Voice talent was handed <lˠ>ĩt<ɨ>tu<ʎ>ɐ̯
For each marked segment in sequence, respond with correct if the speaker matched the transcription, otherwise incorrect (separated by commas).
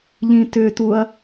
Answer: incorrect, incorrect, incorrect